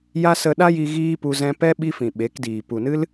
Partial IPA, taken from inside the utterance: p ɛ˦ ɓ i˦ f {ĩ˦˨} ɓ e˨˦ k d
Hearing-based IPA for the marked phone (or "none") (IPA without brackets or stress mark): ĩ˨